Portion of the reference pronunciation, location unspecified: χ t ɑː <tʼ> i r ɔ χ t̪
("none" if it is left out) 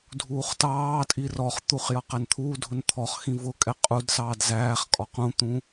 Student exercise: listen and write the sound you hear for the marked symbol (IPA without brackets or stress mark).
tʼ